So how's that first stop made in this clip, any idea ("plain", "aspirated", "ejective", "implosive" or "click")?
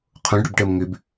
aspirated